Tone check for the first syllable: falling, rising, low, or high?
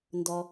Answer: low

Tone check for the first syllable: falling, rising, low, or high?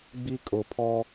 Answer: high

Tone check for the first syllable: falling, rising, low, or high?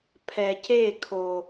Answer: low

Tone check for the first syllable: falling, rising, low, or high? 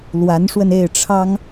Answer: rising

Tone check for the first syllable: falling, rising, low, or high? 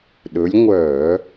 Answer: rising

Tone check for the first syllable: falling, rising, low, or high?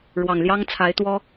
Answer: low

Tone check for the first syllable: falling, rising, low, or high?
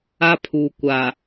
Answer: high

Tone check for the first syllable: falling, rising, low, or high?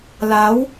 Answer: rising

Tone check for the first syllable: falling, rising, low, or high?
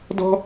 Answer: high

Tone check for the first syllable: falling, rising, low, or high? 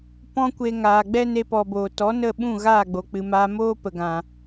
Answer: high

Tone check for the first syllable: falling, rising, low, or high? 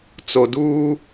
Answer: low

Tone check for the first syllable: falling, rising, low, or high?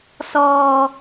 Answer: low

